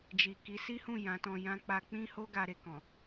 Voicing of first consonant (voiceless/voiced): voiced